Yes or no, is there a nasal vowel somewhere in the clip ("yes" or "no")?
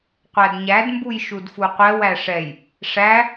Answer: no